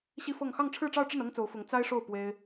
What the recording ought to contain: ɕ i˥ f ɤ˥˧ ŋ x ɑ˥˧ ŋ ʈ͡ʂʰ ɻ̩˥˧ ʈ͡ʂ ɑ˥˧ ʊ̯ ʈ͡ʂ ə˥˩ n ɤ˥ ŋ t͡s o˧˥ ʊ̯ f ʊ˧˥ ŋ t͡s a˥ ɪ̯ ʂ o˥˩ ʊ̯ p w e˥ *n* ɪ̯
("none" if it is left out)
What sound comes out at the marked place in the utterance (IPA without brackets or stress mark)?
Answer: none